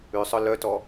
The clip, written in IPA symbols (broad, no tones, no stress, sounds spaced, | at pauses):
ʉ sˤ œ l œ t ɔ